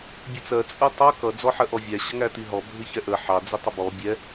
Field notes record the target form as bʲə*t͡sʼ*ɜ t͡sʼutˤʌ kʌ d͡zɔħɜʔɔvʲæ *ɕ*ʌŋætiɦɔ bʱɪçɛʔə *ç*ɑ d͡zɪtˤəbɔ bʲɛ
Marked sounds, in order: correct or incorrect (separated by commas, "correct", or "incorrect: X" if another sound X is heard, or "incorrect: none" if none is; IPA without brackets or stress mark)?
incorrect: t͡s, correct, incorrect: ħ